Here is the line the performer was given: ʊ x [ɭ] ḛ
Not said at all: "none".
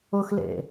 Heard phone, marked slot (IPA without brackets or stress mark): l